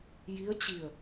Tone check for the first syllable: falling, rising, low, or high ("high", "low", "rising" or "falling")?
rising